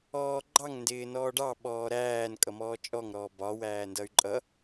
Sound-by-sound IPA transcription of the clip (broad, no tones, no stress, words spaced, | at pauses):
ɔːɡ͡ǃɑŋ ndɪːnɔːɖɑ ɓɔːɾæːn kʼʌmɔːt͡ʃʼɔŋ ɾɔːbɒ wæːndʌy̯ǃʼʌ